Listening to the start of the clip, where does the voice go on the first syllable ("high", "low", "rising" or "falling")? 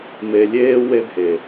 low